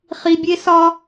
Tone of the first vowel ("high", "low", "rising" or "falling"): low